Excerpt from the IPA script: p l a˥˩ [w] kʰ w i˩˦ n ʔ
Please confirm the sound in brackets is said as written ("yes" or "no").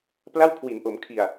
yes